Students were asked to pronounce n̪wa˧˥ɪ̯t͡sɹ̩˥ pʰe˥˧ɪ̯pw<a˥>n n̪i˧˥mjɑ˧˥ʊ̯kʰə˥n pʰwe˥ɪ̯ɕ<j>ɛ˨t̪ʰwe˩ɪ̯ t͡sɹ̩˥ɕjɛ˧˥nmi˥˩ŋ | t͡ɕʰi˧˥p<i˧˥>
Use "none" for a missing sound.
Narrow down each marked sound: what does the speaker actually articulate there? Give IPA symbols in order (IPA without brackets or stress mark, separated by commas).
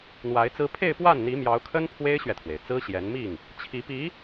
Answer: a˥˩, ɥ, i˧˥